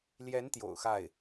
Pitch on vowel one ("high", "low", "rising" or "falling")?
rising